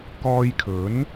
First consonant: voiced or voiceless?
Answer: voiceless